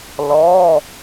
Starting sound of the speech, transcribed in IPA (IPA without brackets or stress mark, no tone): l